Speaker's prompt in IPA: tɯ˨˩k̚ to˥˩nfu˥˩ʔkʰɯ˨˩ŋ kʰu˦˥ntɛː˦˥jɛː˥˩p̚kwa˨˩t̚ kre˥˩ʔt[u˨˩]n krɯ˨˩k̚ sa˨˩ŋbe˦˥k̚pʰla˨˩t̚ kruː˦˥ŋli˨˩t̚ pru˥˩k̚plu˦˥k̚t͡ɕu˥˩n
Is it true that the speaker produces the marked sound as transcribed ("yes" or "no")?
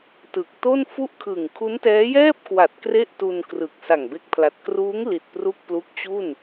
no